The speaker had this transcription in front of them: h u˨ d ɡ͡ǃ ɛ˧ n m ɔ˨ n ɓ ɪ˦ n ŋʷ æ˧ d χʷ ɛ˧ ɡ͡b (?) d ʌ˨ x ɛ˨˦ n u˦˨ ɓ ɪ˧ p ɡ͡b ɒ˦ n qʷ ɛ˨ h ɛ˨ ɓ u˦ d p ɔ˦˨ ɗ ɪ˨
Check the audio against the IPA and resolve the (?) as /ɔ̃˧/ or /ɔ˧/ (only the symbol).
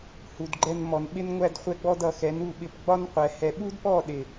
ɔ˧